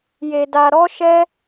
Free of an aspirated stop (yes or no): yes